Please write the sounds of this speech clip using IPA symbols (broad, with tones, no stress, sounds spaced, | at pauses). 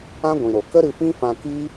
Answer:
ã˦ ɡʷ ĩ˨ ɾ o˨ k ə˦ ɾ ɨ˧ f ĩ˦ f ã˧ k i˦